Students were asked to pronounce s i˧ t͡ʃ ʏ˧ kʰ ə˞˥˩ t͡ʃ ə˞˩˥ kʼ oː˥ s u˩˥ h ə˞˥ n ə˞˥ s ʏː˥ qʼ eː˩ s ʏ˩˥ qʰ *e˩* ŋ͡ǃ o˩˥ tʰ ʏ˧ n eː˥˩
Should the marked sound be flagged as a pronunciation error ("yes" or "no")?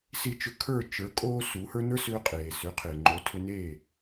no